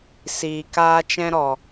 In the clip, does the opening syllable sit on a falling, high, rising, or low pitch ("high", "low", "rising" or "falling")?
low